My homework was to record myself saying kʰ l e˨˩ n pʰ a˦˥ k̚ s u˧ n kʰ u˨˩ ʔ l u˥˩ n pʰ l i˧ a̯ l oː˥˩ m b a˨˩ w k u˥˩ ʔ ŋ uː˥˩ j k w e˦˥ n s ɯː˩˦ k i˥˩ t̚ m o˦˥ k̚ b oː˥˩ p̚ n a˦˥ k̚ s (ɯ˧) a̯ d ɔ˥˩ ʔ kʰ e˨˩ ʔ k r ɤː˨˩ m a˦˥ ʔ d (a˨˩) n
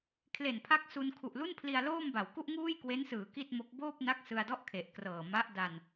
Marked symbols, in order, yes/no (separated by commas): yes, no